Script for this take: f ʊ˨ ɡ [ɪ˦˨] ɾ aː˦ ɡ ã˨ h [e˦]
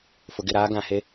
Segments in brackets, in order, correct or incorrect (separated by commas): correct, correct